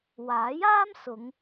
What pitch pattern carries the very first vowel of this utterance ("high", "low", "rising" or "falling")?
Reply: rising